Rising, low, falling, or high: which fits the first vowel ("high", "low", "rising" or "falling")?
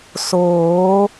rising